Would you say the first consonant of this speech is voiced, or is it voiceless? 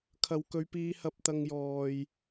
voiceless